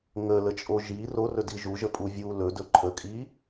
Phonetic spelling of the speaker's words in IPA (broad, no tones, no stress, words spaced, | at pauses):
ŋələt͡ʃʼo ʒi rorɵdi ʒuʒəpʼu vʲu lɵdɵ ǃʰəkʼi